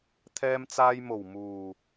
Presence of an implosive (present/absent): absent